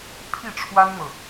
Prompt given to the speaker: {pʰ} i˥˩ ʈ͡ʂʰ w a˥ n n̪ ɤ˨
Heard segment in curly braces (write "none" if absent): pʰ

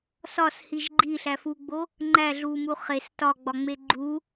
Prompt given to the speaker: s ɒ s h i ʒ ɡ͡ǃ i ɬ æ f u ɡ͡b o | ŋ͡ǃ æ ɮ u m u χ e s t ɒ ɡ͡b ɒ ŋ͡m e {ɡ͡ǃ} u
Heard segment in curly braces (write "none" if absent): ɡ͡ǃ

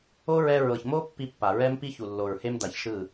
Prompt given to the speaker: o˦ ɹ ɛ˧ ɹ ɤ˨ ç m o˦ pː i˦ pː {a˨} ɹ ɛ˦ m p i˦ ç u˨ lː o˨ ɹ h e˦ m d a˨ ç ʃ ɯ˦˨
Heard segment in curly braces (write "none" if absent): a˨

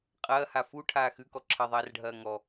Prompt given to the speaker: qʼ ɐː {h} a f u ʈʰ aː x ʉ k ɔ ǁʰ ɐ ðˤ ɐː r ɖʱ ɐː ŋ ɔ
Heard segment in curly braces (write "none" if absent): h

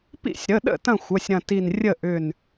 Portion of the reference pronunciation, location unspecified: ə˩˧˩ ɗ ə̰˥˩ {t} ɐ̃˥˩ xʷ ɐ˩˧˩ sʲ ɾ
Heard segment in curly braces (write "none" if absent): t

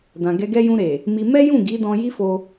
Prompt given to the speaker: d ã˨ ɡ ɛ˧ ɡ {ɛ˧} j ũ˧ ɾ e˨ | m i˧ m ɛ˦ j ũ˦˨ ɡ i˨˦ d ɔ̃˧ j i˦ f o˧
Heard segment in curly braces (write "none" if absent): ɛ˦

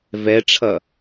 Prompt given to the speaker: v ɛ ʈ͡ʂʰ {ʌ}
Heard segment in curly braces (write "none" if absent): ʌ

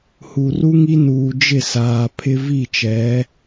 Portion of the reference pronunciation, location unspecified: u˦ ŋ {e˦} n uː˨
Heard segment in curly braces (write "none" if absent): i˦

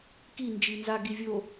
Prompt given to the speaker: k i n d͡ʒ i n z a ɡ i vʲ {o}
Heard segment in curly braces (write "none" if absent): o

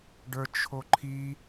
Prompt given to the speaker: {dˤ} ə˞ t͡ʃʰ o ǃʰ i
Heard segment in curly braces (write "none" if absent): ɖ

